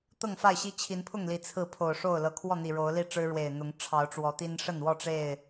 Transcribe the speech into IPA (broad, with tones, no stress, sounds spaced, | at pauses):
t̪ ɤ˥˨ ŋ f a˥˨ ɪ̯ ɕ i˦ t͡ɕʰ i˨˦ n pʰ ʊ˥˨ ŋ l i˨˩ t͡sʰ ɹ̩˥˨ pʰ o˨˩ ʊ̯ ʂ o˥˨ ʊ̯ l ɤ˨˩ kʰ w ɔ˥˨ n̪ i˨˩ ɻ o˨˦ ʊ̯ l i˥˨ ʈ͡ʂ ɻ̩˦ ɻ w e˨˩ ɪ̯ n̪ ʊ˨˦ ŋ ʈ͡ʂʰ ɑ˨˦ ʊ̯ ʈ͡ʂ w ɔ˨˦ t̪ i˦ n ʂ ə˥˨ n w ɔ˥˨ ʈ͡ʂ e˥˨ ɪ̯